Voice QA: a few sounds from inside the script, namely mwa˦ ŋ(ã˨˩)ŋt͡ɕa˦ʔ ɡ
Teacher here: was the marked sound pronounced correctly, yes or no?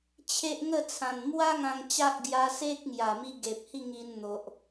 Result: no